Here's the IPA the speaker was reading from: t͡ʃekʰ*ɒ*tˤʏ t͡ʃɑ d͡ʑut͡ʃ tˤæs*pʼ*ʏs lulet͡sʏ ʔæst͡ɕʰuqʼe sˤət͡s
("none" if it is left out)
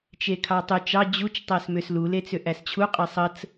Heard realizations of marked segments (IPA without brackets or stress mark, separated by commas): ɑ, m